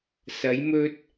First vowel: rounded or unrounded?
unrounded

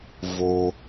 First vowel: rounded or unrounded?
rounded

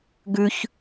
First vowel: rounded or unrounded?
rounded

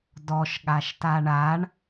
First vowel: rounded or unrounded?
rounded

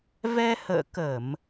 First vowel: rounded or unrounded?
unrounded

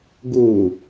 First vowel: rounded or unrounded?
rounded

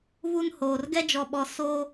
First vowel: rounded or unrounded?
rounded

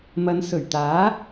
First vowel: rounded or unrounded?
unrounded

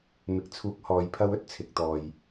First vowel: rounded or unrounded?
unrounded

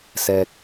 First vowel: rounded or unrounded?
unrounded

